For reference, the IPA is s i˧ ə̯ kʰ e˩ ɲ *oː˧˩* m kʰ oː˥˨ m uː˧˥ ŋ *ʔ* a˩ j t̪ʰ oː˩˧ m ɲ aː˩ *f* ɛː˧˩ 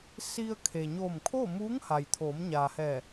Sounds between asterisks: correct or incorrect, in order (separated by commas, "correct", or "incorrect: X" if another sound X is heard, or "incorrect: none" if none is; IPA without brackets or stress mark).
correct, incorrect: h, incorrect: h